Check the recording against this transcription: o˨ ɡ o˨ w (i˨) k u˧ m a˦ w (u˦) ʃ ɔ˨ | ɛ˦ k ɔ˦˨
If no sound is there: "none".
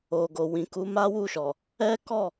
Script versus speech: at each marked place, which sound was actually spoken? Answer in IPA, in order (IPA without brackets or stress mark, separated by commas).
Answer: ĩ˨, u˦˨